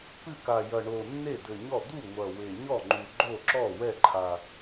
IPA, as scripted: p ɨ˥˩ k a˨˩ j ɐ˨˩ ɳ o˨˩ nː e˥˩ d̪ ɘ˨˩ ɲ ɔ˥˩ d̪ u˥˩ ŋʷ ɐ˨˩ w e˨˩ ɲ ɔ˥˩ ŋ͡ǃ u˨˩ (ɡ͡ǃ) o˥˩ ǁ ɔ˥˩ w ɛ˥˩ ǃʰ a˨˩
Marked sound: correct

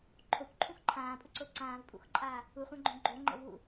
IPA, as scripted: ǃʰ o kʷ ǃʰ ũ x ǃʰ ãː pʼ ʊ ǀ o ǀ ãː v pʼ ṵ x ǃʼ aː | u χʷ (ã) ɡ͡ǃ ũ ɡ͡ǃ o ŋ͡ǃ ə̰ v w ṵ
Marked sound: correct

